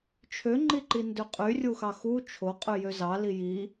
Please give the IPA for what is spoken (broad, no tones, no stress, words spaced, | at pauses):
t͡ʃʰøŋ͡ǃiǃindø qʼy rʲuxɑxu t͡ʃʰo qʼyjøzɑ liji